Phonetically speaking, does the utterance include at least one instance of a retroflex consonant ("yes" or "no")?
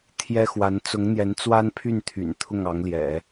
no